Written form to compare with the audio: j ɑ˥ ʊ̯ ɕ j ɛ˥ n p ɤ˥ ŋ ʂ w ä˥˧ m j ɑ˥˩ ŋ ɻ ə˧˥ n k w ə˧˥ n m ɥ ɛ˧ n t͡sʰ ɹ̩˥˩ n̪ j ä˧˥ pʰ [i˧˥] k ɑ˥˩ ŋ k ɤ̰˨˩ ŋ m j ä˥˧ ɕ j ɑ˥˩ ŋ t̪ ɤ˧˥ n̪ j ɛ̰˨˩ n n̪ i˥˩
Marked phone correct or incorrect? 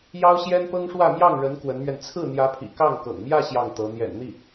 incorrect